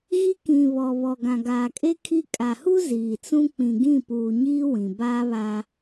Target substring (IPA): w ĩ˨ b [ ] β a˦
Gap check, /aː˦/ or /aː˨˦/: aː˦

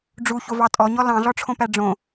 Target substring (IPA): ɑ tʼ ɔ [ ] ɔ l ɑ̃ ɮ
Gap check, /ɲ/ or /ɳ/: ɲ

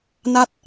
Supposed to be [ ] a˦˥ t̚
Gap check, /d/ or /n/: n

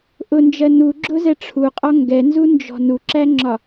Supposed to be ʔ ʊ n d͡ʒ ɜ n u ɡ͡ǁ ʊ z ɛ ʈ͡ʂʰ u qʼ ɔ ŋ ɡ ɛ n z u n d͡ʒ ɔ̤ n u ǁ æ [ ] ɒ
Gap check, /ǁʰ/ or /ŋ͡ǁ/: ŋ͡ǁ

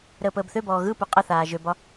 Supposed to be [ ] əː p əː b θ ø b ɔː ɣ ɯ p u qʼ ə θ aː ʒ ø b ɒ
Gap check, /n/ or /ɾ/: ɾ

